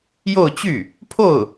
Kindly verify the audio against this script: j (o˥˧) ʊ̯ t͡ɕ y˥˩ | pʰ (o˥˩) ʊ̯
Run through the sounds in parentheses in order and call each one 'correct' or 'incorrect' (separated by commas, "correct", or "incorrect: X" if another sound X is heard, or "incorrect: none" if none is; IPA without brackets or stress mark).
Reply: correct, correct